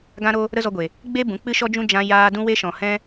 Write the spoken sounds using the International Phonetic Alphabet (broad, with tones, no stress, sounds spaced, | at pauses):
ɡ ã˦ ɾ o˦ | ɾ ə˦ z ɔ˧ ɡʷ e˨ | ɡ͡b e˦ b ũ˨˦ k͡p ɨ˦ ʃ ɔ˦ d͡ʒ ũ˦ d͡ʒ ã˧ j aː˧ d ũ˧ w e˧ ʃ ɔ̃˨ h ɛ̃˧